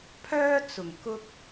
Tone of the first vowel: high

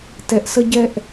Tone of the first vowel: low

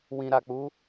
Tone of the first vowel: low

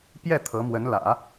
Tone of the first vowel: falling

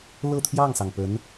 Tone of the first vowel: falling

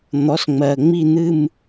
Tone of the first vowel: rising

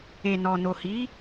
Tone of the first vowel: low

